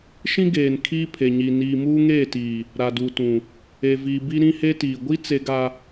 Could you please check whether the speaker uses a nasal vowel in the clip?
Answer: yes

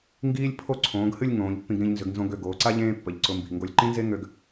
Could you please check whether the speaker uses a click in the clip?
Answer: yes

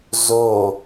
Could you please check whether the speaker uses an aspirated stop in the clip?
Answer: no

